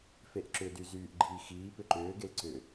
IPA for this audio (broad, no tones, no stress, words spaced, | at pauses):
feʔǁʏdy zyːʔɡ͡ǃiːxiː pʏǃʏːɡel ǀʏ